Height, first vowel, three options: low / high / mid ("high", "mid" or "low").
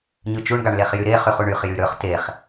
high